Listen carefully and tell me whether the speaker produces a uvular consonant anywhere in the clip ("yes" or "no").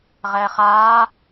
yes